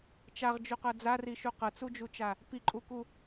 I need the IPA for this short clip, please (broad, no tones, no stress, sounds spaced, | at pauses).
t͡ʃ a ʁ d͡ʒ u q ɤ d͡z a r i ʃ u q ɤ t͡s u d͡ʒ u t͡ʃ a | p i ǃʼ u k u